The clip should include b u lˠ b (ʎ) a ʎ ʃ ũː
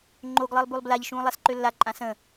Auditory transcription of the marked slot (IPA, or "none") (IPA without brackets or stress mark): l